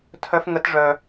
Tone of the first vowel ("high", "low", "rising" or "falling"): high